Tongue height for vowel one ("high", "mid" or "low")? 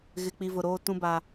high